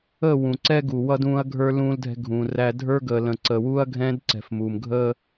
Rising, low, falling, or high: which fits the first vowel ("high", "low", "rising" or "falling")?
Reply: falling